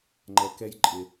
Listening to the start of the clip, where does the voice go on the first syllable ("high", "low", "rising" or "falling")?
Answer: low